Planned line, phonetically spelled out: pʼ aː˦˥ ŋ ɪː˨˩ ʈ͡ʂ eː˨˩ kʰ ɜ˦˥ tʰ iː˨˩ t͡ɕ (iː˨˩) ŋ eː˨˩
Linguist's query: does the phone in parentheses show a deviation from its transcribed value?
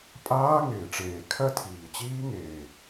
yes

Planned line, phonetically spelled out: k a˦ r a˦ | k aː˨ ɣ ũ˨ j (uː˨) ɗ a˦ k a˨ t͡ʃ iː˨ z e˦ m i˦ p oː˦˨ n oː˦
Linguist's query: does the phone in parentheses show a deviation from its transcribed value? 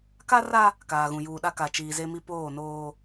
no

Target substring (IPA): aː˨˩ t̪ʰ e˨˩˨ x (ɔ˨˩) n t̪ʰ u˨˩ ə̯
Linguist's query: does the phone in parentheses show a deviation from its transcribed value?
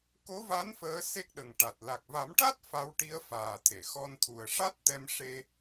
yes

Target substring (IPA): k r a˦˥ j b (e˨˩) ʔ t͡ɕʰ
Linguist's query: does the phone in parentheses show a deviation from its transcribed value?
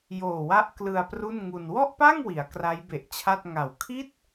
no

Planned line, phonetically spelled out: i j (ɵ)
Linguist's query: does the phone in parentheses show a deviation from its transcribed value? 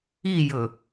no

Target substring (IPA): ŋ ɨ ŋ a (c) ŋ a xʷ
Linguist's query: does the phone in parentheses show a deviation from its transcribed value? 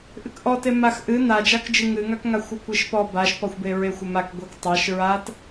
yes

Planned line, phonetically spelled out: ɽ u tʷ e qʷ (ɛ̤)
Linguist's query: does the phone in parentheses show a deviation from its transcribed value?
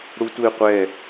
yes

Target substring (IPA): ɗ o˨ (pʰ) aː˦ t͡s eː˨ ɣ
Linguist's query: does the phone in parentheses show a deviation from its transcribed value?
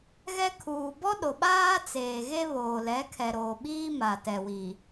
yes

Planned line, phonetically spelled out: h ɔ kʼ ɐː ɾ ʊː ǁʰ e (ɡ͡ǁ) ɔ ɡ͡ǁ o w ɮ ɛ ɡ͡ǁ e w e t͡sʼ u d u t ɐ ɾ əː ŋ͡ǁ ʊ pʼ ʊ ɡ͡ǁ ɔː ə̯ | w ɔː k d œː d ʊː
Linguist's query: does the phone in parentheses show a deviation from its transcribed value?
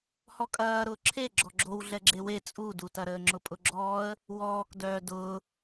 no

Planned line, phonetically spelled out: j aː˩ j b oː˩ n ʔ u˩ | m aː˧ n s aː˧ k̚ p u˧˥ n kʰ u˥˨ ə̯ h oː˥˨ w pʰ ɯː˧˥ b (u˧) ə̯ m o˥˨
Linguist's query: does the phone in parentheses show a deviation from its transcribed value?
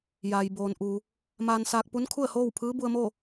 no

